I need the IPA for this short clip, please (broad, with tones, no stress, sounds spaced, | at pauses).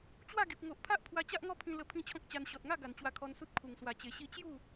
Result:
t͡ɕ w a˥˧ ɡ i˨ p̚ ŋ o˨ ʔ pʰ a˦ ʔ pʰ w a˧ t͡ɕ a˦ ʔ ŋ ɔ˦ pʰ ĩ˧ l ə˧ pʰ ĩ˥˧ t͡ɕʰ ɔ̃˦ k̚ t͡ɕ a˧ n ɕ ɔ˨ t̚ ŋ a˥˧ ɡ a˨˩ n t͡ɕ w a˧ kʰ ɔ˧ n s u˦ t̚ kʰ u˨˩ ŋ s w a˨˩ t͡ɕ e˨˩ ɕ i˧ t͡ɕ j u˥˧